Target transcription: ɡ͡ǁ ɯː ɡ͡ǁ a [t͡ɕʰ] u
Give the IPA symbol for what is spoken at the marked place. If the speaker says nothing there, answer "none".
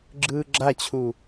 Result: t͡ɕʰ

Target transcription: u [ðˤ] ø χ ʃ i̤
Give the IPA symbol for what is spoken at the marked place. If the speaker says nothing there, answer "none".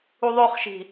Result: ðˤ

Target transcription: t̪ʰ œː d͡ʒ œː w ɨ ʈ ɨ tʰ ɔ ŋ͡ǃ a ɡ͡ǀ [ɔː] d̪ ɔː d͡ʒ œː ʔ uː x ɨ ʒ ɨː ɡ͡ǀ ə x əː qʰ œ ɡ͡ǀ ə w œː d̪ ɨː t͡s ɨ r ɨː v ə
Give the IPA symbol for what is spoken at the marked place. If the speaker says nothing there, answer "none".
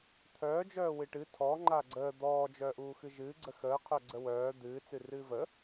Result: əː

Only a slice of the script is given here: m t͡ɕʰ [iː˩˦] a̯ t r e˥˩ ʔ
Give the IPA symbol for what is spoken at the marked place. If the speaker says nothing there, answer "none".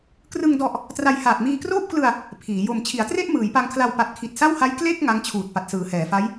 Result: i˩˦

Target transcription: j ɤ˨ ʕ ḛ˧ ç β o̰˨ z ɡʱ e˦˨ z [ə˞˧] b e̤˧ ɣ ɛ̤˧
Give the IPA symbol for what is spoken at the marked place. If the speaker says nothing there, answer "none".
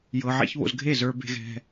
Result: ə˞˧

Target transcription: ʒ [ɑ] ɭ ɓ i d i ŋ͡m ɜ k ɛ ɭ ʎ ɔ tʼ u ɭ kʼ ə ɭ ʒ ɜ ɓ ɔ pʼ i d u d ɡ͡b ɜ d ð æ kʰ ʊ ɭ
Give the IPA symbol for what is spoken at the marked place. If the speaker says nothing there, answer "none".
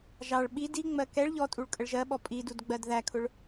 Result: ɑ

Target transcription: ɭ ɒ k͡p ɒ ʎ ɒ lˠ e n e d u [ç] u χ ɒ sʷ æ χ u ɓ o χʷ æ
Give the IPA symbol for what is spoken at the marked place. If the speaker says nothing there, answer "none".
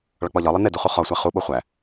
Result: χ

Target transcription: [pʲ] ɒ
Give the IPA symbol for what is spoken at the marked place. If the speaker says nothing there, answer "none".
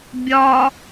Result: bʲ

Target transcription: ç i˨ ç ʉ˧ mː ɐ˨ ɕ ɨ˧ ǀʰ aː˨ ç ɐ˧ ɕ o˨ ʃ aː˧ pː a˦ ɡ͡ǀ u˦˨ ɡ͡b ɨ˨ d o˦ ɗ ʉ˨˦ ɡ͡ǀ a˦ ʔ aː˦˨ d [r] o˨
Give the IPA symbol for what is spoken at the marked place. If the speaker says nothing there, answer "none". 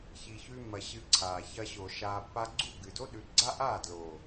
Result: l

